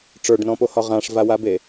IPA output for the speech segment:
ʈ͡ʂə˞ɖnɔ̃pohɒ ʁãʂvawabe

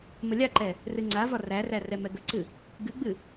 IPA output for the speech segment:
məlʲaǃɛ | rɨŋ͡ǀavɒ ræræ rɛmɛɡəǀɨ | ɡɨɡ͡bɨ

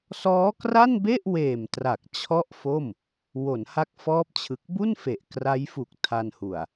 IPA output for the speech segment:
sɔː˦˥kra˥˩nbe˥˩ʔweː˨˩m tra˨˩k̚ t͡ɕʰɔ˥˩ʔfo˥˩m | wo˩˦nha˦˥k̚fɔː˦˥p̚ t͡ɕʰɯ˨˩k̚ bu˥˩nfe˨˩ʔ kra˦˥jfu˨˩k̚ tʰa˧nhu˨˩a̯

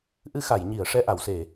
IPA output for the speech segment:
ʔɨ˧xa˨˩˨jɲi˨˩˨ə̯ ʂɛ˧ʔa˨˩˨wse˨˩˨

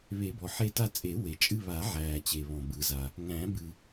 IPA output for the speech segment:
βe˨˩˦bɔ˩ħe˦˨ ta˦˨t͡sʼe˨˩˦ we˩ t͡ʃʼɨ˦˨βaː˨˩˦ʕæː˩t͡ɕe˩ βɔ̃˩bɯ˩za˩ | ŋæ̃˨˩˦bɨ˩

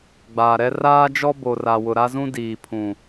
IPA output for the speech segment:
ɡ͡baː˨ɾɛ˦ raː˦d͡ʒɔ˦ bo˨ra˨ wʊ˨ɾa˦zũ˦ diː˨pʰũ˨

